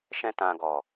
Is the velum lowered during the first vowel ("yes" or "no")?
yes